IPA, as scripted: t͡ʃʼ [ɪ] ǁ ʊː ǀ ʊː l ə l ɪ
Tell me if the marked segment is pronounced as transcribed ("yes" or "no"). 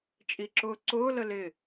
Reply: no